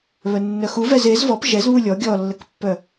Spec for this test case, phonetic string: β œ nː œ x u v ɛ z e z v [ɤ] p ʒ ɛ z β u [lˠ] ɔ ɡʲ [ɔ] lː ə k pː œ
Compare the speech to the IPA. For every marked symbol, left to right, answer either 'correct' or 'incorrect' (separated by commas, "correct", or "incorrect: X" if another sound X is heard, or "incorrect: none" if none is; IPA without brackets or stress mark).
incorrect: ɔ, incorrect: lʲ, correct